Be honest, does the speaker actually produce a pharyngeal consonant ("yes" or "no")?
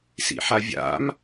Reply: yes